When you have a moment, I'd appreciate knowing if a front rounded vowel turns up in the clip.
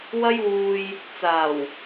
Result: no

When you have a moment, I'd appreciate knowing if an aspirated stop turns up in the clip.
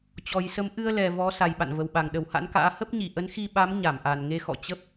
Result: no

